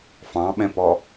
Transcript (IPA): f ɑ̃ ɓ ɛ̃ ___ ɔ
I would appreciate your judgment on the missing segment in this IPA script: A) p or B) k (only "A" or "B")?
A